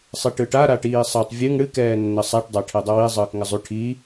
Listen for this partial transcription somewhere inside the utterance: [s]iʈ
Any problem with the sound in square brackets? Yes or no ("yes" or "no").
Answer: yes